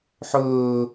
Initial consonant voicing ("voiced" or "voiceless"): voiceless